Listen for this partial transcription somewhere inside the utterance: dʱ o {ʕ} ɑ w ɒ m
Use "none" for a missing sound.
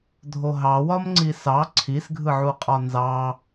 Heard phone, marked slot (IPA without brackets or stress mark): ɦ